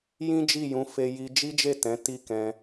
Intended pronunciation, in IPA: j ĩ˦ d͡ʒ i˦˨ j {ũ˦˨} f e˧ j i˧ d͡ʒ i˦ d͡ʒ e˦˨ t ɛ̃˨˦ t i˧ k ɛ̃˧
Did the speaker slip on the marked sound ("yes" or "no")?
yes